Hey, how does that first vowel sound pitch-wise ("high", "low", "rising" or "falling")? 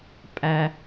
low